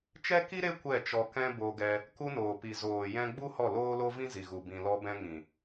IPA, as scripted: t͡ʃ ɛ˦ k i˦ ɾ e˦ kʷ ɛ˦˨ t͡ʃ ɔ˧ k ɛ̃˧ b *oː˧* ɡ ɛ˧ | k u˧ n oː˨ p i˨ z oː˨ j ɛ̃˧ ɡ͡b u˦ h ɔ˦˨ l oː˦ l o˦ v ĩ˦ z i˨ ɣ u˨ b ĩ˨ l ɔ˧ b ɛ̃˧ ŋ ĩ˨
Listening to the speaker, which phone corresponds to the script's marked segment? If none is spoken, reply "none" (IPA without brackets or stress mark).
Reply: o˧